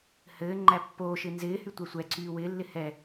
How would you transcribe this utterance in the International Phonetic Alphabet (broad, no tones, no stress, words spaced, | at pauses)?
hɘː ŋ͡ǃæpːoːʃɪ nzɪːhy tʷɛsʷɛǀyː wɪːlːɪ hɛ